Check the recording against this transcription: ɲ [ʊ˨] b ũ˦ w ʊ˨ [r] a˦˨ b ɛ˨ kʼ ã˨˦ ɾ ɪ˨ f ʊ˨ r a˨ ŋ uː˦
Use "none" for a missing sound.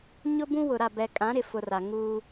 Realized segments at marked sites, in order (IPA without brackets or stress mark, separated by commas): ʊ˦, ɾ